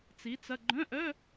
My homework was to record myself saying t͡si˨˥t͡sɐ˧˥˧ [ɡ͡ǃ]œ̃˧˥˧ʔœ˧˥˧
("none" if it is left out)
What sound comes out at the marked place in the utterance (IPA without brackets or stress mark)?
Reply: ɡ͡ǃ